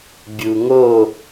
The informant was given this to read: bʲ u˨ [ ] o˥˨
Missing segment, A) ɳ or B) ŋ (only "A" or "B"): B